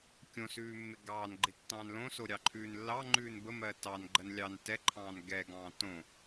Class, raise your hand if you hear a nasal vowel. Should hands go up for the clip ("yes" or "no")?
yes